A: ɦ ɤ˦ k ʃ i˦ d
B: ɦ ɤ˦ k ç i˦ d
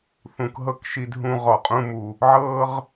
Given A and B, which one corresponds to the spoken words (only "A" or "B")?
A